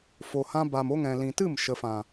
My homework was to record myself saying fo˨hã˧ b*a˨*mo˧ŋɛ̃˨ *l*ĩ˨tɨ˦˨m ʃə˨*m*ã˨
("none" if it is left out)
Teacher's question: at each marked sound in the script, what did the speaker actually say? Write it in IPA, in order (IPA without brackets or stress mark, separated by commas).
a˨, l, f